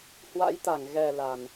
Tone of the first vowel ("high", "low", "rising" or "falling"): rising